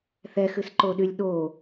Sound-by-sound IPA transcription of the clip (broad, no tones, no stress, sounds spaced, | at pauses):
θ ɛ x ɨ s ǃ o ɗ y lʲ ɗ o